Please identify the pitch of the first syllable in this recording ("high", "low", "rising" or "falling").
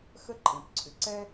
high